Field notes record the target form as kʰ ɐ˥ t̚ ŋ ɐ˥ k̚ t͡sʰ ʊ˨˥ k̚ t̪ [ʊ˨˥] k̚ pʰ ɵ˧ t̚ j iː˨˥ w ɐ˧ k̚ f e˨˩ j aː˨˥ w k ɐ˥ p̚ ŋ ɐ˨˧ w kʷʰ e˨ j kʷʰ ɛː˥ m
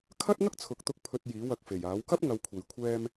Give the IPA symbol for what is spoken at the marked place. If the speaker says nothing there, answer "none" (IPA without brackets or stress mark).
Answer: ʊ˧